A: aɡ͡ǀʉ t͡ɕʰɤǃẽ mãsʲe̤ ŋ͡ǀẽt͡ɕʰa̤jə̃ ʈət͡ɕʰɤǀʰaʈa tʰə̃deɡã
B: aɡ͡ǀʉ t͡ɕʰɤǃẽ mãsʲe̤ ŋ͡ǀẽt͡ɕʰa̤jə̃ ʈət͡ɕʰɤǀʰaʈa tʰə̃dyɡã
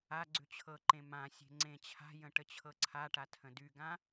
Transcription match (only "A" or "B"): B